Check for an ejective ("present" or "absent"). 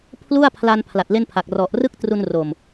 absent